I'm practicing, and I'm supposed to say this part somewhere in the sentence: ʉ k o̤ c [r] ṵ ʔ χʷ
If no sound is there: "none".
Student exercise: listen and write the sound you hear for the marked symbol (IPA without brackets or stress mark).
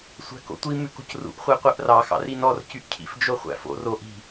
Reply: r